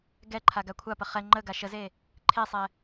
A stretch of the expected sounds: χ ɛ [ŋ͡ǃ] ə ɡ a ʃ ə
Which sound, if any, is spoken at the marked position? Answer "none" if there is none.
ŋ͡ǃ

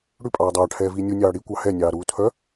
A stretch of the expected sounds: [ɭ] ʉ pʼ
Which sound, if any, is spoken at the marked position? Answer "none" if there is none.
ɽ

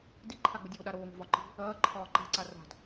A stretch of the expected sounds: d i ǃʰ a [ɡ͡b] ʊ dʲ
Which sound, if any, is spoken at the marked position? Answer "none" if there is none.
ɡ͡b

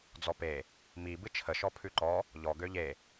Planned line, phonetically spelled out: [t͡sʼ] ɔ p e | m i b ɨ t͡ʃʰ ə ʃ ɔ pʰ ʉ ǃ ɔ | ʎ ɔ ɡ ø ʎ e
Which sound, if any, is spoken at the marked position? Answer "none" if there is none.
d͡z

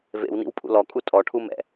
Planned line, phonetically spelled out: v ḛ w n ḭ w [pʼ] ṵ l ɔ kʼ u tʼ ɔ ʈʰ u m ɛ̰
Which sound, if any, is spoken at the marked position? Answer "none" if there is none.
pʼ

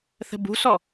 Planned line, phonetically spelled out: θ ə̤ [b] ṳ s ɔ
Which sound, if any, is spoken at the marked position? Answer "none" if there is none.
b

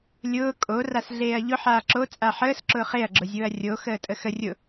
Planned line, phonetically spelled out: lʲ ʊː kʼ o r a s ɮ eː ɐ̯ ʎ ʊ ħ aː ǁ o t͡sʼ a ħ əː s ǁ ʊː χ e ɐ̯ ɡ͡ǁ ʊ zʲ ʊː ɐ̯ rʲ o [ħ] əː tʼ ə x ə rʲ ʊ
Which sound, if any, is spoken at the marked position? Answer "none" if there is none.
x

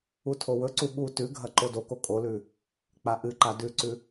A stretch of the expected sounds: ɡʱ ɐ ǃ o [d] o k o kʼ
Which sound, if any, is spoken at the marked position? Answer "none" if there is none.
d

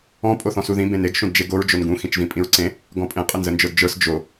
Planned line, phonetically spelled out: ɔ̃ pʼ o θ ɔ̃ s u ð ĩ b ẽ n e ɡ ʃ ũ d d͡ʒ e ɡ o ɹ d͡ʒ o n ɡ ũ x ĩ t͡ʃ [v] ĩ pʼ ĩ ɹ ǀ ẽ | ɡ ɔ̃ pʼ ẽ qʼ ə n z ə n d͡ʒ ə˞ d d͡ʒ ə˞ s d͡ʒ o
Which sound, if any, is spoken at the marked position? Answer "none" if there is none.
v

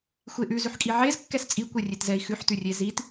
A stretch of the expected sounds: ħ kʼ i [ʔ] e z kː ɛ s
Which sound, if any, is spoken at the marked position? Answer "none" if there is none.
ʕ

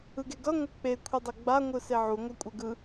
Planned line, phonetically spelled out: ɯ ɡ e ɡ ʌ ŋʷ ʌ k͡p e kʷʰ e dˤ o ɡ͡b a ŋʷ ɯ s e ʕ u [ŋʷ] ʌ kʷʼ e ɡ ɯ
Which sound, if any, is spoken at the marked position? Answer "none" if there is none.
ŋʷ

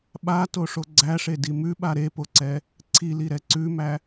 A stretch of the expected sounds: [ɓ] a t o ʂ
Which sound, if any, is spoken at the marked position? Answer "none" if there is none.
ɓ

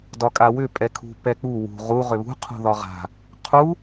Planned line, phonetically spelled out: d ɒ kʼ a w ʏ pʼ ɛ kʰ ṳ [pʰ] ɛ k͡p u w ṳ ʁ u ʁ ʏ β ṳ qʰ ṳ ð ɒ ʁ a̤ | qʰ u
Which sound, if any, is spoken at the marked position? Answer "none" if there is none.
p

